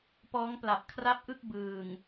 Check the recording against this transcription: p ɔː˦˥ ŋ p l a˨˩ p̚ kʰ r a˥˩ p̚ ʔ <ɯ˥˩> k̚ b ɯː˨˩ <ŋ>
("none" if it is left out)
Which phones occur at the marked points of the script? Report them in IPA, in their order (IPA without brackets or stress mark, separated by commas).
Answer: ɯ˥˩, ŋ